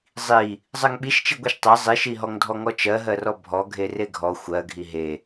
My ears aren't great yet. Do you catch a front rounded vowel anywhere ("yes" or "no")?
no